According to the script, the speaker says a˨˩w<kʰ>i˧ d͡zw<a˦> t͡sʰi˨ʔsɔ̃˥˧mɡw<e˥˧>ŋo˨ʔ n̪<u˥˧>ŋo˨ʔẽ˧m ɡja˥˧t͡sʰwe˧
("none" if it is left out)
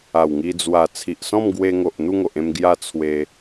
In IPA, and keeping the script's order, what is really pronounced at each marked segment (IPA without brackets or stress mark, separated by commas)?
ŋ, a˨˩, e˧, u˥˧